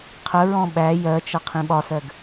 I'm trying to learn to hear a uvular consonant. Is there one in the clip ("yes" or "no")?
yes